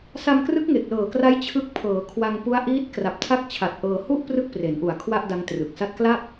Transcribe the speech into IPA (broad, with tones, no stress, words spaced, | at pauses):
sa˧mkrɯ˦˥k̚ŋe˨˩k̚ lɤː˨˩kra˦˥j t͡ɕʰɯ˦˥k̚ pʰɤː˩˦kʰwa˧ŋ pu˦˥a̯ʔiː˦˥t̚ kra˨˩p̚tʰa˦˥k̚t͡ɕʰa˨˩t̚ ʔɤː˧hu˥˩ʔ prɯ˥˩k̚pre˩˦nʔu˨˩a̯ kʰwa˥˩ʔda˦˥ŋtrɯ˨˩k̚ sa˦˥t̚kla˥˩p̚